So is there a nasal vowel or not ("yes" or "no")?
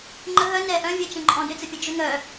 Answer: yes